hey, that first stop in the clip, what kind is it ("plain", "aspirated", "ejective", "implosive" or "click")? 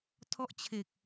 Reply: aspirated